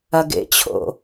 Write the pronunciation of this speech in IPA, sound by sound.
ɐ ɡ ḛ t͡ɕʰ o̰

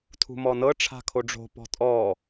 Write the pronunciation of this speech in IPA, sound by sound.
tʰ ṳ m ɔ n ɤ ʈ͡ʂʰ a̤ kʰ o ɖ͡ʐ o̤ p ɔ̤ tʼ ɔː

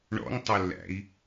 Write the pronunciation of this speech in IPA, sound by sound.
ɳ ɔ̰ ŋ tˤ o lː æ̰ i̯

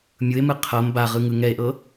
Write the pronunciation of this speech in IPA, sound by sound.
mʲ ɯ e̯ m ɯ qʰ ɤ m b a ʁ ɯ ŋ ɯ ŋ ɛ e̯ ʔ ɤ

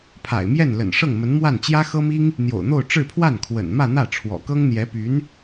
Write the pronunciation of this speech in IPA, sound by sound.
pʰ a̰˨˩ ɪ̯ m j ɛ˥˩ n l ə̰˨˩ n ʂ ɤ˥˩ ŋ m ə˧˥ n m w a˥˩ n t͡ɕ j ä˥ x ɤ˥ m i˥ ŋ | n̪ j o̰˨˩ ʊ̯ n̪ o˥˧ ʊ̯ ʈ͡ʂ ɻ̩˥˧ pʰ w a˥˩ n kʰ w ə̰˨˩ n m ä˥˧ n̪ ä˥˩ ʈ͡ʂʰ w ɔ̰˨˩ k ɤ˥ ŋ n̪ j ɛ˧˥ p y˧˥ n

